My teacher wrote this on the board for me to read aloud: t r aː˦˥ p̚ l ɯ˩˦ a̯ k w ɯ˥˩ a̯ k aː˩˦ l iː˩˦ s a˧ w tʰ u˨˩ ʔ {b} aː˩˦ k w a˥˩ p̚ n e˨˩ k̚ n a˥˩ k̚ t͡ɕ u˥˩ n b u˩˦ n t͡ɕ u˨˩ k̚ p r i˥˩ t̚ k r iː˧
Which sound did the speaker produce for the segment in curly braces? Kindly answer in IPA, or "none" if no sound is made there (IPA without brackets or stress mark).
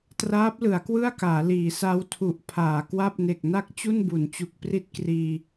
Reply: pʰ